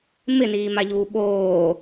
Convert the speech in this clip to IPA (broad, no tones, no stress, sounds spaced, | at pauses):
m ɪ n iː m a ʎ uː ɓ oː